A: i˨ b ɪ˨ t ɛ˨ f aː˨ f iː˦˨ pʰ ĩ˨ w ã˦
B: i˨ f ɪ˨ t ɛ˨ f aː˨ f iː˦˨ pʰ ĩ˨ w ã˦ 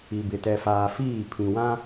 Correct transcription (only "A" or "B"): A